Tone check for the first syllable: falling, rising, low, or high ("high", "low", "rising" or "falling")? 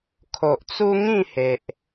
low